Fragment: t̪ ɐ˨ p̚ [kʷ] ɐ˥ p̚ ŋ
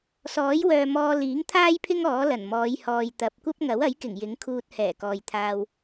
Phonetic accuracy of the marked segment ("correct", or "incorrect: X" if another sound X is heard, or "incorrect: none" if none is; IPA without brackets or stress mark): correct